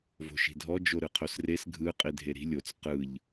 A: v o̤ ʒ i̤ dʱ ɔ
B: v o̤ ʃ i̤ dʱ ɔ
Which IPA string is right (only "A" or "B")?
B